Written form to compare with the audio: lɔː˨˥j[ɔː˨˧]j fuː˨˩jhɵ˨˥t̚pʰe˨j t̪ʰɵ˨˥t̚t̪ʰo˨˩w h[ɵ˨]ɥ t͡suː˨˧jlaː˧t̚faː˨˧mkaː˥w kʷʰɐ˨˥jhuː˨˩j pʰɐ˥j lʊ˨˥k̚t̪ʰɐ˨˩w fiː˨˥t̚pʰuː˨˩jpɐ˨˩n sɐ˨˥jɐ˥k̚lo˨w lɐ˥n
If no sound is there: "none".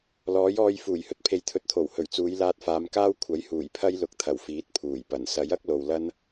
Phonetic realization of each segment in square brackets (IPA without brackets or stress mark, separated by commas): ɔː˧, ɵ˨˩